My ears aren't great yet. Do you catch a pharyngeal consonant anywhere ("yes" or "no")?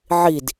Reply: yes